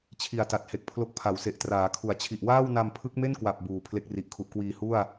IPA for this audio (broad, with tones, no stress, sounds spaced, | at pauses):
t͡ɕʰ i˨˩ a̯ t a˨˩ t̚ h e˨˩ k̚ pʰ l o˦˥ k̚ pʰ a˩˦ w s e˨˩ ʔ t r aː˩˦ kʰ u˩˦ a̯ t͡ɕʰ i˨˩ ʔ w aː˥˩ w n a˧ m pʰ ɯ˦˥ k̚ m e˥˩ n k w a˨˩ p̚ b uː˨˩ pʰ l e˥˩ k̚ r i˨˩ ʔ kʰ u˨˩ ʔ k w iː˧ h u˥˩ a̯